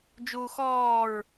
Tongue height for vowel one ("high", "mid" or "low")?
high